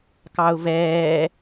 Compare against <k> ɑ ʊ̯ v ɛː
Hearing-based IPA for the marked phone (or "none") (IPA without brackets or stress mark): k